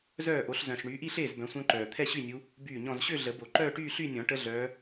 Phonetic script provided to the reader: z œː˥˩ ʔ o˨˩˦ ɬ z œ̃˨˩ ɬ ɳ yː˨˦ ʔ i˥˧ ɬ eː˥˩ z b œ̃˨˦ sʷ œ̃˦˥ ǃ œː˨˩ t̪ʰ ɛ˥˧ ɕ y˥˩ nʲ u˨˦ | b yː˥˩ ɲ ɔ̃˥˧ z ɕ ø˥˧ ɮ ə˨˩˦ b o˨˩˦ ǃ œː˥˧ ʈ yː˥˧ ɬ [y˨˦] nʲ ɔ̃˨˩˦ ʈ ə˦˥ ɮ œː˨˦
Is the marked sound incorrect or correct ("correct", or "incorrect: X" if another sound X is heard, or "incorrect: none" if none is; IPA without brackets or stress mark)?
incorrect: y˥˧